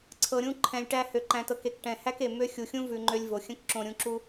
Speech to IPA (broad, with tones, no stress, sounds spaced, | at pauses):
ǀʰ ɤ˧ ɾʲ ũ˦ ǃʰ ɛ̃˧ lʲ ʈ æ˦ h ø˧ ǃ æ̃˧ t ɤ˧ k e˦˨ k ʈ ɛ̃˨ h æ˦ k e˨ m ø˦ xʲ u˨ xʲ ũ˦ v ʉ˧ ŋ͡ǃ ø˧ lʲ v o˨ xʲ ə̃˦ k ǁ õ˧ ɾʲ ũ˧ ǁ u˦